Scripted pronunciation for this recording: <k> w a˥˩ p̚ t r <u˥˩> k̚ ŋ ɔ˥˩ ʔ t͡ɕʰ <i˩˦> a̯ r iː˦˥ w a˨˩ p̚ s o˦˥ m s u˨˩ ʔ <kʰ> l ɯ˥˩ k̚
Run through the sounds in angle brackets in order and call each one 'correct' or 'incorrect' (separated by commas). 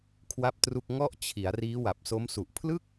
incorrect, correct, correct, incorrect